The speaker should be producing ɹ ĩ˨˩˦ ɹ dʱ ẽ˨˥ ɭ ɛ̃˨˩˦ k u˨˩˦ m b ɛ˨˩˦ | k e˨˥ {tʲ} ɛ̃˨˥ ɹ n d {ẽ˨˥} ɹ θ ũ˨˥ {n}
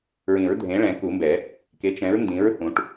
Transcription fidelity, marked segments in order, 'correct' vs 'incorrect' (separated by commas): incorrect, incorrect, incorrect